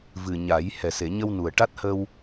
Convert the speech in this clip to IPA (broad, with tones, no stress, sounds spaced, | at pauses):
v ɨ˨˩ ɲ a˨˩˦ j h ɛ˨˩ s e˨˩˨ ɲ ə˧ w n u˨˩ ə̯ ʈ a˦˥ t̚ h ə˧ w